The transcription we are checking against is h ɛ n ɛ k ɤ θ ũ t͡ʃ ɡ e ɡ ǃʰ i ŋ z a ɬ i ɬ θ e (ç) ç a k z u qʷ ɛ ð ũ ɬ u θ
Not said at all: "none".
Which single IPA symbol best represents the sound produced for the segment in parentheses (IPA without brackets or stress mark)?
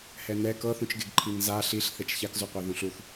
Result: t͡ʃ